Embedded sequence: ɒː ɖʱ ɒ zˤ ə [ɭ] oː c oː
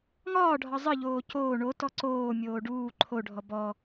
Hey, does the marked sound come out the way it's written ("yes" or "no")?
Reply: no